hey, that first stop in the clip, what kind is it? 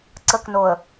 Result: click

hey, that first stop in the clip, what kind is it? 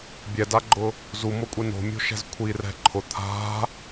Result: plain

